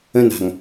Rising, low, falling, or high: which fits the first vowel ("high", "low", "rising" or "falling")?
high